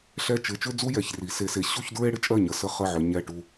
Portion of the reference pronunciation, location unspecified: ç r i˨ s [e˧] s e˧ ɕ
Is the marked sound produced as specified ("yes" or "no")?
yes